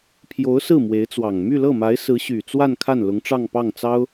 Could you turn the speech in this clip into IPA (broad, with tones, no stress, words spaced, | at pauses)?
pʰjo˧˥ʊ̯sɹ̩˥˩ mwe˧˥ɪ̯t͡swɑ˨˩ŋ my˥˧lɤ˥˩ma˧˥ɪ̯ sɹ̩˧˥ɕy˨˩t͡swa˥˧n kʰa˥˩nlʊ˧˥ŋʈ͡ʂɑ˥˧ŋ pɑ˥˩ŋt͡sɑ˥ʊ̯